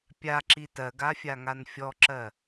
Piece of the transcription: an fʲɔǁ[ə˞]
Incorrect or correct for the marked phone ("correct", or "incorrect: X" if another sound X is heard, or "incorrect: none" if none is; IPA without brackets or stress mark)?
incorrect: ɜ